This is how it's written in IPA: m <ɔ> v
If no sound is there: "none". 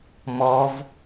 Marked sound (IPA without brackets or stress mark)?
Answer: ɔ